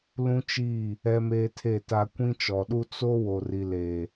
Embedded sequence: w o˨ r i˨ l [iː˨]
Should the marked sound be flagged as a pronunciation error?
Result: yes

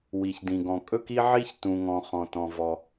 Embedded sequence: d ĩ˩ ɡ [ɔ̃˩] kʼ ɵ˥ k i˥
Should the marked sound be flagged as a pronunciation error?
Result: no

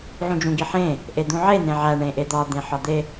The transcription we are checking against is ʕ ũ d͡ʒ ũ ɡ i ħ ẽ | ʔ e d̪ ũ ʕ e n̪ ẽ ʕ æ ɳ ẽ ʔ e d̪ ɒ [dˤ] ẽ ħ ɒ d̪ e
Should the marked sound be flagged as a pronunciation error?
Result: yes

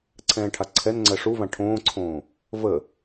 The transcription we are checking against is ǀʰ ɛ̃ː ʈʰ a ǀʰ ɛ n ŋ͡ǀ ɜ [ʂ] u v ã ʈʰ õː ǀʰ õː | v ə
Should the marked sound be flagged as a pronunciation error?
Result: no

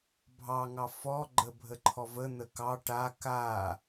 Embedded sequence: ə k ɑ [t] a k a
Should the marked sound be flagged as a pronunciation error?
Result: yes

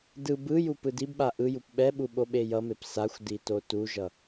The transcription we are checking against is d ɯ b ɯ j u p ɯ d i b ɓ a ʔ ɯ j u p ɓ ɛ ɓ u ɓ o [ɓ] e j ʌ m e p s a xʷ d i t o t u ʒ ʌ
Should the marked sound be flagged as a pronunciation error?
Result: no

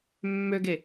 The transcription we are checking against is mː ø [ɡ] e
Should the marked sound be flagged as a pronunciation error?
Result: no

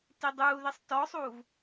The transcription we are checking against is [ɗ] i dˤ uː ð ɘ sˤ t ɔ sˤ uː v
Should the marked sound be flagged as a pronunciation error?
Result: yes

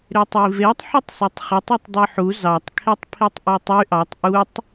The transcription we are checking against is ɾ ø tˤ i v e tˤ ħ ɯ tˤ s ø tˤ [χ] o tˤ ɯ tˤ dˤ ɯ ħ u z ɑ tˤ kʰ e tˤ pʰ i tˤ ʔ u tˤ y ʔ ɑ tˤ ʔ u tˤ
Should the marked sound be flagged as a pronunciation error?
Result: no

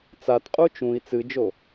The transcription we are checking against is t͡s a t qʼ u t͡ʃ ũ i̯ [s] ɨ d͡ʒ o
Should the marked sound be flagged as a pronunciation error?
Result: yes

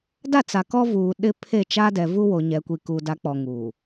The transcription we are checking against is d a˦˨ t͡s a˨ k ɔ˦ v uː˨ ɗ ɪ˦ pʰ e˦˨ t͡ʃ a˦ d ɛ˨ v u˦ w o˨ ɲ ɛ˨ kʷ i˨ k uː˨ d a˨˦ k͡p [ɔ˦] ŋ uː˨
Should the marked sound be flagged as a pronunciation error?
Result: yes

